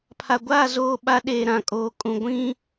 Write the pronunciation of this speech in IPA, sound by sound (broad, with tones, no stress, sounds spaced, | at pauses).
pʰ a˨ ɡʷ aː˦˨ z oː˦˨ ɓ a˦ ɗ eː˨ ɾ ã˨ kʼ oː˨˦ kʼ ũ˨ ɡʷ ĩ˦